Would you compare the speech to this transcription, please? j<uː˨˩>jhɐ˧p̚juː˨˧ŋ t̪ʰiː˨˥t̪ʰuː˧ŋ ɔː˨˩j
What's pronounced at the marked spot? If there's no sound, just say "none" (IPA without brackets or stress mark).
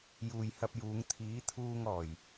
uː˨